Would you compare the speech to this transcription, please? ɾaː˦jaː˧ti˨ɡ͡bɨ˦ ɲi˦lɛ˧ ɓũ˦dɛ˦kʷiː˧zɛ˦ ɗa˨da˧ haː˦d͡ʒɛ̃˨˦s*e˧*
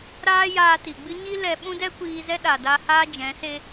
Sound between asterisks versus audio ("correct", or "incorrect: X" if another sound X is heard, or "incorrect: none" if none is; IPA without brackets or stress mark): incorrect: e˦